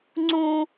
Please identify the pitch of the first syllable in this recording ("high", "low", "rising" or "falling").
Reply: high